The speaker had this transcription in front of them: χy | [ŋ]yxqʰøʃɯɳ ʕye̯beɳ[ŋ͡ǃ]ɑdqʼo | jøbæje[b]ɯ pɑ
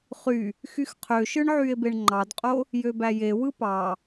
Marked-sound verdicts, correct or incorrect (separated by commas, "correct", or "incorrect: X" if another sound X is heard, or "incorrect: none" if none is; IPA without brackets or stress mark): incorrect: x, correct, incorrect: w